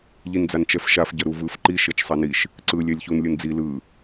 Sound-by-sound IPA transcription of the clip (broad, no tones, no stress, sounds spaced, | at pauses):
ʎ i n d͡z a n t͡ʃ ɛ f ʃ a f ɟ ʌ ɾ u v ɯ f ǃ i ʃ e t͡ʃ sˤ a n i ʃ | ǀ ɯ lʲ ɛ lʲ ç u n lʲ ɯ n d͡z i l ɯ